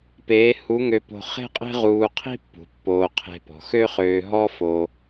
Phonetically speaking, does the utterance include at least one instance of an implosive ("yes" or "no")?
no